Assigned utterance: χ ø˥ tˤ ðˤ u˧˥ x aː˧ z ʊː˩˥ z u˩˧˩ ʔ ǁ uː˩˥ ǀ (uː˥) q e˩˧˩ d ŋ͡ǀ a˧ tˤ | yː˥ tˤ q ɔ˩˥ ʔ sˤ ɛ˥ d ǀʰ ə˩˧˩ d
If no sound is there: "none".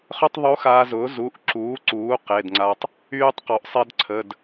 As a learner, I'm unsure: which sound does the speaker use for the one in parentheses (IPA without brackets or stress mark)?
uː˩˥